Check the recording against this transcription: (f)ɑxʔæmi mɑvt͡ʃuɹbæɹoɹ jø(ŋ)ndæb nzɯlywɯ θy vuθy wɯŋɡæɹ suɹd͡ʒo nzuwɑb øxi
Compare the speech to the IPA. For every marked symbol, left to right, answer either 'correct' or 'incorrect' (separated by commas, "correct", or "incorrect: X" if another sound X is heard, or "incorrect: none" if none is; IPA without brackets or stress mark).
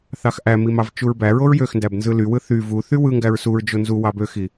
incorrect: θ, incorrect: x